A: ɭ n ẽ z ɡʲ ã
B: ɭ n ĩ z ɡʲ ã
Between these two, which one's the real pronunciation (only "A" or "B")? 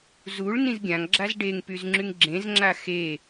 B